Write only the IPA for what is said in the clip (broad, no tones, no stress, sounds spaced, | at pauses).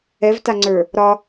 ɛ v t a ŋ͡ǀ ə˞ | ɾ ɒ